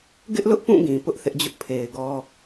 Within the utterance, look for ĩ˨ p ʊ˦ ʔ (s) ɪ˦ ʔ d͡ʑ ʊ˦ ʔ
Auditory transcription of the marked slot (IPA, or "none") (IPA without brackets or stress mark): θ